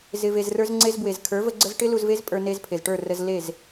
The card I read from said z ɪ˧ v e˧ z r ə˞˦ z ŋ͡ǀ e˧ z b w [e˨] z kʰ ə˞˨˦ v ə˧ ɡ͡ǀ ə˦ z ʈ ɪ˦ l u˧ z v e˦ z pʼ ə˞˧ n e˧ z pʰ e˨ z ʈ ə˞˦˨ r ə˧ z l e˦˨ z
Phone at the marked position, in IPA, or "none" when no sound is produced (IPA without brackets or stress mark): e˨